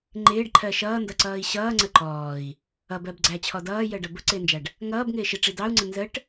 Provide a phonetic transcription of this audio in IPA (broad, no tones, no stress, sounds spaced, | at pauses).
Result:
ŋ͡ǃ ɪː ɖ ǃʰ ɜ ʃ ʌː n d ʌ ǀ ʌː i̯ ɕ ʌː ŋ͡ǀ ə ǃ ɔː i̯ | ʌ b ɜ b ɡ͡ǀ æ t͡ɕʰ ɔ d ʌː j ɜ ɖ ʌ b ʊ ǀ ɪː n d͡ʒ æ ɖ | ŋ ʌː b ŋ ɪː ʃ ɪ ʈ͡ʂ i d ɑ u̯ ŋ͡ǀ ə n z ə ʈ